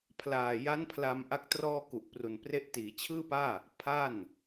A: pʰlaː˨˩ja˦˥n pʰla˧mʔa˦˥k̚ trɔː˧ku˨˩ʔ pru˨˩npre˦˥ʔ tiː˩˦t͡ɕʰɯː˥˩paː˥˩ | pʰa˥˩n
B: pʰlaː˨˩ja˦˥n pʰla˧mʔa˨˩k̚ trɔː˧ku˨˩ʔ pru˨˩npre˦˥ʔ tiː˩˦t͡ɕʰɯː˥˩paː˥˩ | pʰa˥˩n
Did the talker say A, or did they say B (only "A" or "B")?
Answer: A